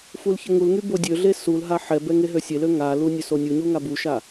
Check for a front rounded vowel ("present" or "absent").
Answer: present